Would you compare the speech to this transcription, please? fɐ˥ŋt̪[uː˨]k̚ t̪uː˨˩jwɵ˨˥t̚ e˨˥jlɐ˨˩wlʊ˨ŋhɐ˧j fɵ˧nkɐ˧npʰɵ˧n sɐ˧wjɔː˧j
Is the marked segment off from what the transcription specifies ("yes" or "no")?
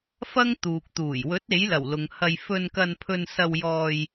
no